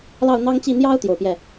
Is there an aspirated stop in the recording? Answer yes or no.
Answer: no